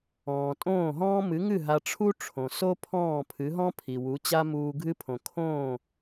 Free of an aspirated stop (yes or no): no